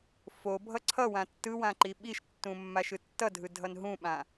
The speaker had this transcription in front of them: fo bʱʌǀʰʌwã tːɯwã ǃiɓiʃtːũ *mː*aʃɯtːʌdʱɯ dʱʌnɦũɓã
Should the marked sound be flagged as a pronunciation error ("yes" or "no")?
no